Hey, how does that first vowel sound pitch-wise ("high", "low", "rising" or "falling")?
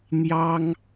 high